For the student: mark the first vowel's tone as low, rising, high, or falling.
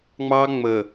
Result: high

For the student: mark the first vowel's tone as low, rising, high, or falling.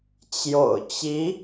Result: low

